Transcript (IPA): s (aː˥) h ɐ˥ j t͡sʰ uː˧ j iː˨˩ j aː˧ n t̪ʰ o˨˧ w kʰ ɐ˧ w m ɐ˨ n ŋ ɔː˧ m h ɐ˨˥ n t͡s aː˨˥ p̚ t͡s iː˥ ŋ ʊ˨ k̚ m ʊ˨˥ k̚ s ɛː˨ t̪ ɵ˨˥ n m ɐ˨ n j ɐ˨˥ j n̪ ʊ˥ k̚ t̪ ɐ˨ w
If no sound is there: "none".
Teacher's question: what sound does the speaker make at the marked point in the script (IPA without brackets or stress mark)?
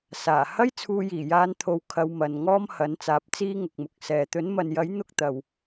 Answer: aː˨˩